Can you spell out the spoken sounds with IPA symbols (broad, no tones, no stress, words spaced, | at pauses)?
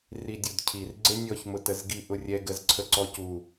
ridʲudcʰir ɡ͡ǀenʲɔç mʊtəzɡi ʔʊrʲɛ ɡəzǀʰəǀɔcu